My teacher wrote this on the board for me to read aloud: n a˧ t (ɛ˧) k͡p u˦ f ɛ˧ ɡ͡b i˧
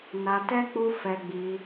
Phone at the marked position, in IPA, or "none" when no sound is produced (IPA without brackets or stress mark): ɛ˦